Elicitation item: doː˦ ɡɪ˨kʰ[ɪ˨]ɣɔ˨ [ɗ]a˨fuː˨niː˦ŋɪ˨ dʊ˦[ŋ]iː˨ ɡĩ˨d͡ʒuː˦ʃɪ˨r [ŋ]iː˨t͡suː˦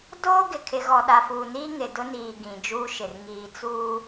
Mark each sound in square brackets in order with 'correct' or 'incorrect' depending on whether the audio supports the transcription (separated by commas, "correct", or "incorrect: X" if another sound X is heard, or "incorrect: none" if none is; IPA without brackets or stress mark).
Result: correct, correct, incorrect: n, correct